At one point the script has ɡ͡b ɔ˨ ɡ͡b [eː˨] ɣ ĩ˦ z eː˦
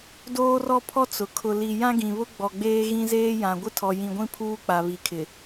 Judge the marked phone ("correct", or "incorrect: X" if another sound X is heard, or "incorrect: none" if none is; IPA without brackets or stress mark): incorrect: eː˦